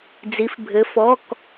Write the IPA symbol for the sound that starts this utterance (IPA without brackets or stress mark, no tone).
d͡z